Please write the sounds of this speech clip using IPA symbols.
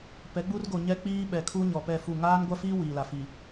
p ɛ˨˦ ɡ͡b u˦ r ɡ o˨ ɲ ɛ˦ k͡p iː˦ ɓ ɛ˨ kʰ u˦ ɲ ɔ˨ p ɛ˦˨ f u˦˨ ŋ aː˦ n ɡʷ a˦ f iː˦ w iː˨ l a˨ f i˨

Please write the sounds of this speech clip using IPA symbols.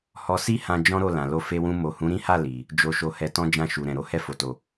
h ɔ˧ s i˦ h ã˧ d͡ʒ ɔ̃˦ ɾ o˦˨ l ã˨ l o˧ f e˧ w ũ˧ m o˨ h ũ˨˦ ɾ ĩ˦ h a˦˨ l i˨ | d͡ʒ o˨ ʃ o˨ h ɛ˧ t ɔ̃˦ d͡ʒ ã˦˨ ʃ u˨ ɾ ɛ̃˨ ɾ o˧ h ɛ˧ f o˨ t o˨

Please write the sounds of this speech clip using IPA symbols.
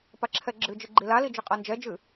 p a ǁʰ ɛ ɡ͡ǁ ɨ d͡ʒ ɨ ɡ͡ǃ i l a l i d͡ʒ ɨ qʼ a n d͡ʒ ɛ d͡ʒ ɨ

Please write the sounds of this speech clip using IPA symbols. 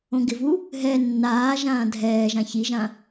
õ ɡ ɪ v u | ɦ ɛ nː aː ʒ ãː dʱ ɛː ʒ ã ç i ʒ ã

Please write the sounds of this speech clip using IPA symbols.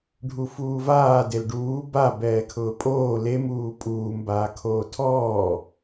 ɖʱ u f uː v aː d e l ɖ uː b a b ɛː kʰ ʊː pʼ oː l e m uː pʼ uː m b aː kʰ oː tʰ ɔː

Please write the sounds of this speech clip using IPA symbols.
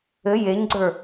ɘ j e ɲ ɡ͡ǀ ə˞

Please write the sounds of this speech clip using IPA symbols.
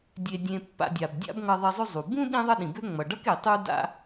dʲ e˨ dʲ ẽ˨ pː a̰˨ dʲ a˩ b dʲ a̰˦ b ŋ ʌ˨ ðˤ i˨ zˤ ø˦ zˤ u˩ b ũ˥ ɗ ĩ˥ ðˤ ʌ˥ ɗ ĩ˩ b ø˥ ŋ͡m ʌ˩ ɖ ʌ˥ k e˩ tˤ u˦ d a̰˦

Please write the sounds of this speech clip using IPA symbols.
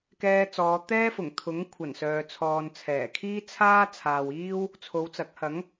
k ɛː˧ t͡s ɔː˨˧ t̪ ɛː˥ f ʊ˨˩ ŋ t̪ʰ ʊ˨˥ ŋ kʷʰ ɐ˨˩ n s œː˨ t͡sʰ ɔː˨ n t͡sʰ ɛː˨˩ kʰ iː˥ t͡sʰ aː˥ t͡sʰ aː˨ w iː˥ w | t͡sʰ o˨˧ w t͡s ɐ˨˥ k̚ h ɐ˨˥ ŋ

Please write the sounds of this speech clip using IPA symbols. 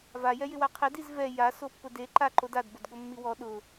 v a j ɛ j ɪ w a qʰ ɛ d i z v ɛ j a s o pː ʊ d e ǃ a ǃ o d a d b o d ɠ o mː i w ɔ ɗ ʊ

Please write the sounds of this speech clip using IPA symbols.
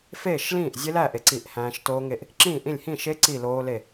f eː˥˨ ʃ l ĩː˥˨ ʔ zʲ e˦˥ l æː˥˨ ʔ e˥˨ ǀ i˥˨ ʔ h æ̃ː˦˥ ʃ t oː˦˥ ŋ e˥˨ ʔ | ǁ ĩː˥˨ ʔ ĩ˥˨ lʲ h ĩ˥˨ ʃ e˦˥ ǀ i˥˨ l oː˦˥ l e˥˨

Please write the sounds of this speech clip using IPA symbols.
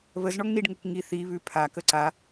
β ə z ɳ ɔ ŋ n i ɖ ŋ o k ŋ i θ i β ʉ pʰ a k ə ǀ a

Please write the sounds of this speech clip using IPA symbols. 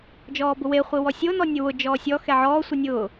d͡ʒ ɔː b ʊ w e χʷ i w ɔ sʲ o n ɔ nʲ ʊ w ʊ d͡ʒ ɔː sʲ ɔ x ɛ ʕ ɔː sʷ i nʲ ʊː

